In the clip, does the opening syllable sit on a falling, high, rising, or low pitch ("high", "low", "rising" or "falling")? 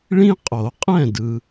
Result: high